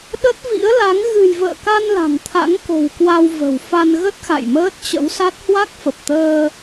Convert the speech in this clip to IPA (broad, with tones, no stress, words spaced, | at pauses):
ɗə˦˥t̚ vḭ˧˥ə̯la˨˦ŋ ɣɨ̤˨˩jvə̰ː˧˨ka˧n la̤˨˩ŋt̪ʰa̰˧˥ŋko̤˨˩wkwa˧w və̤˨˩w fa˧nɣə˦˥t̚xa̰˧˨j məː˦˥t̚t͡ɕə̰˧˥wsa˦˥t̚ hwa˦˥k̚fə˨˩p̚t̪əː˧